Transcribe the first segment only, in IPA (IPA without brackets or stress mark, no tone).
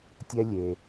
tʲ